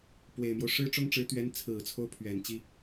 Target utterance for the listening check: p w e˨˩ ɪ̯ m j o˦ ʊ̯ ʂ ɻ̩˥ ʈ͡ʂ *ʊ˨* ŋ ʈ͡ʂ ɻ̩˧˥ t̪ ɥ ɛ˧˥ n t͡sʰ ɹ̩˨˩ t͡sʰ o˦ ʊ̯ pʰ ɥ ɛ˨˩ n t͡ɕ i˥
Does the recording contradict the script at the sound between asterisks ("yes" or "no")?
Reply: yes